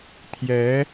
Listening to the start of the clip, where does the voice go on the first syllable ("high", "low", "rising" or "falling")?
rising